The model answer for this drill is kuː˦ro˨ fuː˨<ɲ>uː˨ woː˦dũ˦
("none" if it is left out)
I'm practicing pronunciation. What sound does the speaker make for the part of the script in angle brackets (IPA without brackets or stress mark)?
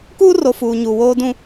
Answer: ɲ